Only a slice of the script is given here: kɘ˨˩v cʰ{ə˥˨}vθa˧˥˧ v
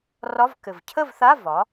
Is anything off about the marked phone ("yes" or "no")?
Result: no